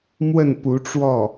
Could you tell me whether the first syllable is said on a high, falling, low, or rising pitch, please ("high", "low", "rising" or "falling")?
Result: falling